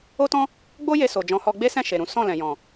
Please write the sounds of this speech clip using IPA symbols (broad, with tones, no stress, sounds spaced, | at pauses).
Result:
o˦ t ɔ̃˦ | ɡ͡b o˦ j e˧ s o˨ d͡ʒ ɔ̃˨˦ h ɔ˧ ɡ͡b e˦ s ɛ̃˦˨ ʃ e˨ ɾ ũ˨˦ s ɔ̃˦˨ l ɛ̃˨ j ɔ̃˨